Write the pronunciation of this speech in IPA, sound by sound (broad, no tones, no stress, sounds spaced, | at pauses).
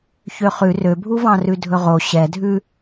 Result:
ç ø χ ʉ r ø bʱ u v ɑ̃ r ʉ dʱ ɵ ʁ o ɕ ɛ dʱ ʉ